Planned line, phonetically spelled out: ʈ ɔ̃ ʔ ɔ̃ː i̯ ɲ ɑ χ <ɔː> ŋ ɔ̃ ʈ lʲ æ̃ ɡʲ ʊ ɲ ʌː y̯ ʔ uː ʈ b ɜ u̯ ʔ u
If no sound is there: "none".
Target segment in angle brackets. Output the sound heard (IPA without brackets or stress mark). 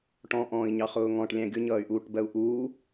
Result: ʊː